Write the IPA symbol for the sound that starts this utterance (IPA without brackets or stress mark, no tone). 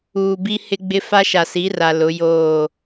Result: uː